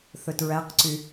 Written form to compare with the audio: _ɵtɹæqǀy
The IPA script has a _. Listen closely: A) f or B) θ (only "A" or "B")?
B